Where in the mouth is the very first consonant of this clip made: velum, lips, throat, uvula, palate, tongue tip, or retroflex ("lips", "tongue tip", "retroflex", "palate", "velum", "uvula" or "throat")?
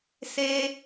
tongue tip